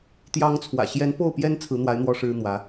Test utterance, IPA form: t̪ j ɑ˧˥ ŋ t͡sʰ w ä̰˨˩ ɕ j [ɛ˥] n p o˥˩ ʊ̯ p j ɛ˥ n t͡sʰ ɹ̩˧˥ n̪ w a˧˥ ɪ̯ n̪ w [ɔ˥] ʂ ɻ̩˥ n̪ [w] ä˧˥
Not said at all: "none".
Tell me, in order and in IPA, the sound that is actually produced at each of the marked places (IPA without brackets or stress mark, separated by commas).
ɛ˧˥, ɔ˥, w